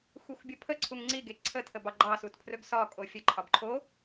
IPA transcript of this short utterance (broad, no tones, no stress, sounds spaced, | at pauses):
xʷ e xʷ bʲ ə pʰ ə ǀʰ u ŋ ŋ͡ǀ i ɡ e ǀʰ ə tʰ ə b ɑ ɡ͡ǃ ɑ s u t pʰ r ɵ ɡ s ɒ kʼ o fʲ ə ǃʰ ɒ b ǃʰ o